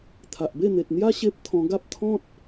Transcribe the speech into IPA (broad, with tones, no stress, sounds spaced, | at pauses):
t̪ʰ a˨ ʔ b e˥˧ n̪ e˨ t̚ n̪ j a˦ ɕ e˦ p̚ t̪ʰ ɔ̃˧ ɡ a˦ p̚ t̪ʰ ɔ̃˦ t̚